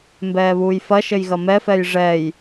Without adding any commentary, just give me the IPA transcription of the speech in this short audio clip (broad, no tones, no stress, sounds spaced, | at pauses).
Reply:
m b ɛː β uː j f ɐ ʃ ɘ j ɣ ɐ m ɛ f ɛ j ʐ ɛ j